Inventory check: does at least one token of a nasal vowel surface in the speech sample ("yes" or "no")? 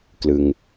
no